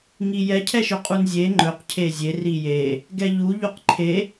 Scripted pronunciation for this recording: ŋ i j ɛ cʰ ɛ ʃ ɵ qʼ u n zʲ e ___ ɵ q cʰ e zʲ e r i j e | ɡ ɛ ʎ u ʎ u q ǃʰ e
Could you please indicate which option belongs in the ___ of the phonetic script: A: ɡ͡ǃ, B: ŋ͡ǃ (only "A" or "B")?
B